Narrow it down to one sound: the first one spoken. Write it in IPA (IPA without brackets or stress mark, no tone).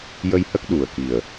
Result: j